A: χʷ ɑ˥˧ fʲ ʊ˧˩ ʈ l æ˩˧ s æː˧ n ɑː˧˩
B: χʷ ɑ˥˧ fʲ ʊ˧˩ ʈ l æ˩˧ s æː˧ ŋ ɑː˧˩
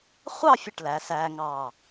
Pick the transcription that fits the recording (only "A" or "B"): B